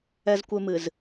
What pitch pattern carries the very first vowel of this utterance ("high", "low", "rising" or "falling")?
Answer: high